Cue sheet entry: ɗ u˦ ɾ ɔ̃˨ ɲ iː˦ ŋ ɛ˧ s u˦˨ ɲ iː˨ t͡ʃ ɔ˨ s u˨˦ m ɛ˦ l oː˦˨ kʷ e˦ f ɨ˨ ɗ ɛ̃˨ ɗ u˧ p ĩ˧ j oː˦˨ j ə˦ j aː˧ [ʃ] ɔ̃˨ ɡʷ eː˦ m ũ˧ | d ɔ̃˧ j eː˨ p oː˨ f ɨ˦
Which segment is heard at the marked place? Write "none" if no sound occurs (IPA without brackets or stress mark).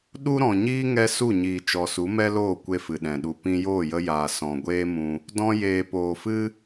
s